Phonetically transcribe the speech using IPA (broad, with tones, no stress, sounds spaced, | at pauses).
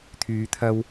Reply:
t̪ʰ yː˨˧ t̪ʰ ɐ˧ w